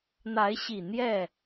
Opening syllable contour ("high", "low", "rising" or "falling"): rising